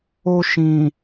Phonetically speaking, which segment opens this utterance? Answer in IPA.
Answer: o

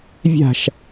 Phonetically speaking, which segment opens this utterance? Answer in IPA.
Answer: vʲ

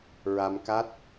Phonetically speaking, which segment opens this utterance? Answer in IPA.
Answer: ɹ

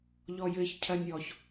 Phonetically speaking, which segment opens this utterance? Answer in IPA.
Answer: ʎ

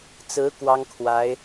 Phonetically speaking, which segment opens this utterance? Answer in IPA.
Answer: t͡s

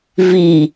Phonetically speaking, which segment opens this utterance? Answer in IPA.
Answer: v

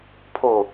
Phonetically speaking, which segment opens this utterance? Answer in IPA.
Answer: pʰ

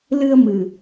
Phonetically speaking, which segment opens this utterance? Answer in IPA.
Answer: l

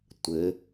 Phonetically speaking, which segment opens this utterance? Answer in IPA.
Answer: tʷ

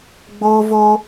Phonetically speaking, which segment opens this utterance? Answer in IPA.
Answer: ɡ͡b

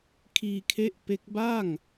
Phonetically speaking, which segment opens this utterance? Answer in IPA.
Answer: kʰ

